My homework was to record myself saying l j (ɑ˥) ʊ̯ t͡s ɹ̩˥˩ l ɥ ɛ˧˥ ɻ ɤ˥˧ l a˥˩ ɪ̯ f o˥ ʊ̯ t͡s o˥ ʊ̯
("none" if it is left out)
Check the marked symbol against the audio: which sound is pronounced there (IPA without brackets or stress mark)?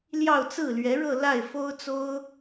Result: ɑ˥˧